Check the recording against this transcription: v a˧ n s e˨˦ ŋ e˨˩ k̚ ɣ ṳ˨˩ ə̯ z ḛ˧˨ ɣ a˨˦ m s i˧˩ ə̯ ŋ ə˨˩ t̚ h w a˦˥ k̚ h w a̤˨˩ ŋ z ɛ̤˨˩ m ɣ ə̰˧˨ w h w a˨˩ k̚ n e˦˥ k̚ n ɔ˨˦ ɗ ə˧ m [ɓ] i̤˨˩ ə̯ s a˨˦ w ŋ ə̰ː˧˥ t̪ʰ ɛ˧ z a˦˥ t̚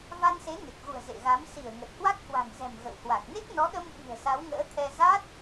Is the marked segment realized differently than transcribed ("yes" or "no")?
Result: no